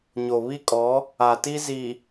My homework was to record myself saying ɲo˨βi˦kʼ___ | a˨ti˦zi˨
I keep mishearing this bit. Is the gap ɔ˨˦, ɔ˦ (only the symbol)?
ɔ˨˦